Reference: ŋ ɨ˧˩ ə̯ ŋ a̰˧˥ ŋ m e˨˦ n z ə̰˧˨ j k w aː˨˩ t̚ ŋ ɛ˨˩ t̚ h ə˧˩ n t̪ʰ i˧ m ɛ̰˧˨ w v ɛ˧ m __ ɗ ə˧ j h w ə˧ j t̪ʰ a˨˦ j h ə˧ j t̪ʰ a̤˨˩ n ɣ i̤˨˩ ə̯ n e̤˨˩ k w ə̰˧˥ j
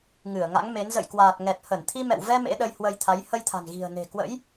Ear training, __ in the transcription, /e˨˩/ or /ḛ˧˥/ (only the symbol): ḛ˧˥